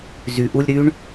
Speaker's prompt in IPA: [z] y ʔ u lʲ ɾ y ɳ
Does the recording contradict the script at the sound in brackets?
no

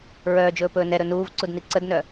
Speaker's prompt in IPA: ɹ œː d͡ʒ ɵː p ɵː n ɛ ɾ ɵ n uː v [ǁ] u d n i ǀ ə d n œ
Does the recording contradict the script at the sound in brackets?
yes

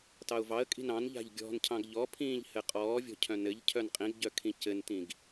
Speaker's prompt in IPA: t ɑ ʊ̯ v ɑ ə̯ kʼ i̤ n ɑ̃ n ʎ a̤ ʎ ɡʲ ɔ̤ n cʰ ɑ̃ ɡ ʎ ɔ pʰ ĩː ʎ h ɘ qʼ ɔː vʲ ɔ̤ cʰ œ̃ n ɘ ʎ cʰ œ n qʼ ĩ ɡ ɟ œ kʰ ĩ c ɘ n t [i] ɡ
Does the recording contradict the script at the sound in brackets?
yes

